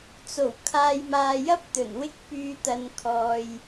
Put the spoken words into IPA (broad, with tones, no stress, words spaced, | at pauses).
t͡so˨˩w kʰaː˧jmaː˧jɐ˥p̚ t̪ɵ˨˩nwɪ˥k̚pyː˧t̪ɐ˨n kʰɔː˨j